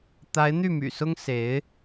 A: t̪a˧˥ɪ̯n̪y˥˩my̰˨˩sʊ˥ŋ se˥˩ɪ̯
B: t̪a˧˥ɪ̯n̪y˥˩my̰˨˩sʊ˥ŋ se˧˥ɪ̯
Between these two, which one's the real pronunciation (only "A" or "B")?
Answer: B